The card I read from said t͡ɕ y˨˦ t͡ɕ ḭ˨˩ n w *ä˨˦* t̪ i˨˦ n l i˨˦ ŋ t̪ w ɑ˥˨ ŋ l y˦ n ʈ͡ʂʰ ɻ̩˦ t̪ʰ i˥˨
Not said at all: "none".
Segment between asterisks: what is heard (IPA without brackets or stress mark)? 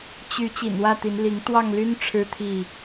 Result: ä˥˨